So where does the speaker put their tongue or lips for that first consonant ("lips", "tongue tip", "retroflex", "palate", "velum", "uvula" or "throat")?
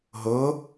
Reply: throat